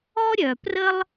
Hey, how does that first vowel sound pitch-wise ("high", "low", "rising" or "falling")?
high